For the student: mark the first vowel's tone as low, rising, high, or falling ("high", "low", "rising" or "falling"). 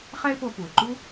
high